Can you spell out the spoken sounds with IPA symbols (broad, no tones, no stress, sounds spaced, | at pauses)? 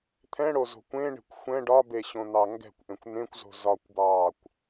t̪ʰ ɛ̃ ɽ o z o̤ kʷ ẽ ɳ e̤ kʷ xʷ ɛ̃ ɖ ɒ b e ɕ õ n̪ ɑ ŋ ɡ ɛ̤ kʷ ʔ ẽ kʷ n̪ ẽ kʷ z o̤ z ɒ kʷ b ɑː kʷ